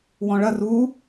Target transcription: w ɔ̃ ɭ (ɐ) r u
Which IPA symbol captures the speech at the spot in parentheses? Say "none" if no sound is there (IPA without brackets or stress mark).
ɐ